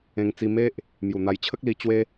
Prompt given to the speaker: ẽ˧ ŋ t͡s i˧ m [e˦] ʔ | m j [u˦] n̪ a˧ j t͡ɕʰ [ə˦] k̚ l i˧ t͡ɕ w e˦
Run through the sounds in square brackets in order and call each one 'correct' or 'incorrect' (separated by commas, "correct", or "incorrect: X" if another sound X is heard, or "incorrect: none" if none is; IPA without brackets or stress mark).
correct, incorrect: u˨˩, correct